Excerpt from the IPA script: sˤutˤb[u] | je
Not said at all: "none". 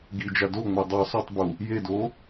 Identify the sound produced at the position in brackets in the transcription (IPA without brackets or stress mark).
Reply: u